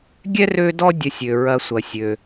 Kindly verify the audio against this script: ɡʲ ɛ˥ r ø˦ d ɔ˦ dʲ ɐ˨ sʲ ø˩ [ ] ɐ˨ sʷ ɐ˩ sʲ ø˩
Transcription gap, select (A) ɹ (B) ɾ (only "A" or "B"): A